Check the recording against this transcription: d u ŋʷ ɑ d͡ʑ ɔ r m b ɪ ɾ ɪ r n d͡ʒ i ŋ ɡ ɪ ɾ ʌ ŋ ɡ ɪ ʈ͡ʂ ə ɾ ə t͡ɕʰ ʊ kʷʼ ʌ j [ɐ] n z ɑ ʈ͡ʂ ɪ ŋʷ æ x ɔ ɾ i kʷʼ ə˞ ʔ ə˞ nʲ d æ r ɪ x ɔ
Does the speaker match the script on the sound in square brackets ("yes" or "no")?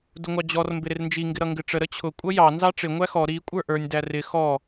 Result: no